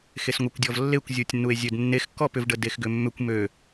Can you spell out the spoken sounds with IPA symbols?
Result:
x e s ŋʷ e kʷ dʲ ɔ v lː e kʷ zʲ u tʲ nː u e̯ zʲ ø d nː e x kː ɔ p ʏ v ɖ ə d e x ɡ ʏ mː ʏ kʷ m ø

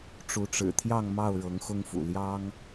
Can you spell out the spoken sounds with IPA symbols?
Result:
ʈ͡ʂ u˨˦ ʈ͡ʂ ɻ̩˨˩ t̪ʰ j ɑ˥˨ ŋ m ɑ˥˨ ʊ̯ ɻ ɤ˨˦ ŋ x ʊ˦ ŋ f ṵ˨˩ l j ɑ˦ ŋ

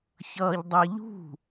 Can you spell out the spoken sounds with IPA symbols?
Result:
ç ʌː ʎ dˤ ɛ ʎ ṳ

